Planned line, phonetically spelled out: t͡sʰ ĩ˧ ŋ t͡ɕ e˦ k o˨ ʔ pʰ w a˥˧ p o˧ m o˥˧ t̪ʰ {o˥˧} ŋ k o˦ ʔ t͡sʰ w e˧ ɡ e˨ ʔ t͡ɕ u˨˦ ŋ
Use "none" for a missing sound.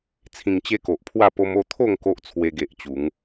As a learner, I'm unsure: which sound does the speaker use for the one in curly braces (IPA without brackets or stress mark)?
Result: o˥˧